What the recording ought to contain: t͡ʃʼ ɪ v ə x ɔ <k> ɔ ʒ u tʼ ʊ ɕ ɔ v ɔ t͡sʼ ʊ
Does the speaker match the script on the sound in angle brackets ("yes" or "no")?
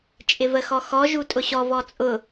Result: no